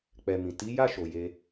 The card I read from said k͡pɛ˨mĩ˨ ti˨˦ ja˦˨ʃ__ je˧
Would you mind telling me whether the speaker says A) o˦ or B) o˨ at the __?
B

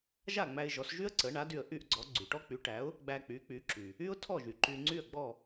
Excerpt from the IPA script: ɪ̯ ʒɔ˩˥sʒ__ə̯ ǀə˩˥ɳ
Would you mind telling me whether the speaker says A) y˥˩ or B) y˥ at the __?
B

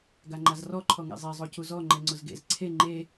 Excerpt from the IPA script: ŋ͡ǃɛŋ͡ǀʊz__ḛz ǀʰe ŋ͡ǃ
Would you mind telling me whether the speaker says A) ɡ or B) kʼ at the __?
A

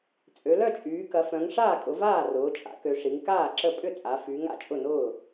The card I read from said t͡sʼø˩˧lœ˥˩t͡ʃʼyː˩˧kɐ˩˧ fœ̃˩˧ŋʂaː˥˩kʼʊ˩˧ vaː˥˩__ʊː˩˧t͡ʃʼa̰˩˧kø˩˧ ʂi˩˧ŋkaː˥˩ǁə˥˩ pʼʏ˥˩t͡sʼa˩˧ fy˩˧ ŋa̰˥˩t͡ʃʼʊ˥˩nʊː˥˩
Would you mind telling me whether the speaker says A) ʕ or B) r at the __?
B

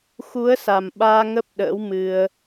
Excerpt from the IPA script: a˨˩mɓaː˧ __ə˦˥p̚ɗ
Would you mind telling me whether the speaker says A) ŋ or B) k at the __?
A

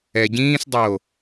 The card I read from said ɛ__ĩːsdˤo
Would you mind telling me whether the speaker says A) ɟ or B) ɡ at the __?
A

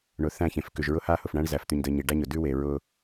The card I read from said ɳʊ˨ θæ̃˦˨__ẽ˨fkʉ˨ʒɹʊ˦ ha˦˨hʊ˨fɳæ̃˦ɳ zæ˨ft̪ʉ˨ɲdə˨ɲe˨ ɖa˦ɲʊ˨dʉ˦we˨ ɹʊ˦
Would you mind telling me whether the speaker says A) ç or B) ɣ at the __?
A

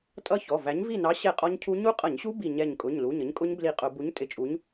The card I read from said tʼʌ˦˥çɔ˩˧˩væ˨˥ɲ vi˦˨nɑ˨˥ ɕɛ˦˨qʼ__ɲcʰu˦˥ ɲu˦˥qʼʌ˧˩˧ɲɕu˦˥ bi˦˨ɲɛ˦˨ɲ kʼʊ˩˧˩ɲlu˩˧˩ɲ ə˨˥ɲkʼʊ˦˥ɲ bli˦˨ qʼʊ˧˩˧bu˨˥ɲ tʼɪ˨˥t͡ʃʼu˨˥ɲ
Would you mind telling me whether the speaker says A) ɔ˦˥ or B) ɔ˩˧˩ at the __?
A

